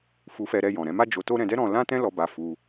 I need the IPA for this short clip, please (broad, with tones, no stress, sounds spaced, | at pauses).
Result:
f u˧ f ɛ˧ ɾ ɛ˧ j ɔ̃˨ ɾ ɛ̃˧ m a˦ d͡ʒ o˧ t o˦ ɾ ɛ̃˧ d ɛ˦ ɾ ɔ̃˧ l ã˦ t ɛ̃˦ l ɔ˧ b a˧ f u˦